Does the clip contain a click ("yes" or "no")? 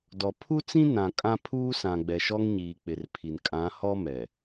no